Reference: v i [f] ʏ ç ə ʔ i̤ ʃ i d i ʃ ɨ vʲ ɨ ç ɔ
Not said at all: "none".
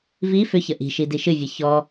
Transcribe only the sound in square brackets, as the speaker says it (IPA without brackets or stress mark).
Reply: f